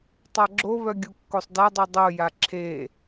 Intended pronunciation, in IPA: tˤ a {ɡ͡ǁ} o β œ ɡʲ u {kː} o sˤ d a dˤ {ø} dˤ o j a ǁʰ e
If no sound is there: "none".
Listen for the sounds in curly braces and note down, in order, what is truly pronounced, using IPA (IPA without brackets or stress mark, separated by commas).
ɡ͡ǁ, kː, ø